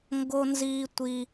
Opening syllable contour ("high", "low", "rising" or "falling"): high